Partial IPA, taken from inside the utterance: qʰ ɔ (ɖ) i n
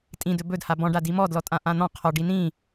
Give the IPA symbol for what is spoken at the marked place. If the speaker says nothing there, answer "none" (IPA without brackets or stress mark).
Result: ɖ